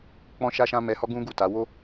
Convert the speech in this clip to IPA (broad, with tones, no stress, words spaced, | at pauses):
k͡pɔ̃˦ʃa˦ʃã˦ mɛ˧hɔ˦ɡũ˦ ɡu˦˨ta˨˦ wo˦